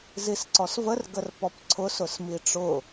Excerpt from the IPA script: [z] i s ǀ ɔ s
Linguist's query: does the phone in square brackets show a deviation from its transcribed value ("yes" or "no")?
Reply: no